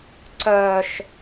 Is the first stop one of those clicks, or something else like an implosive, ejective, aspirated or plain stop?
click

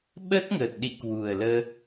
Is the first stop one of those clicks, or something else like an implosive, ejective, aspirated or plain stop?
implosive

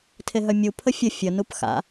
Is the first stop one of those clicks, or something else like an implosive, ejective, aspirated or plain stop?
aspirated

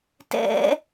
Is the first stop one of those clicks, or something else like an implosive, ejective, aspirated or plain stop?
plain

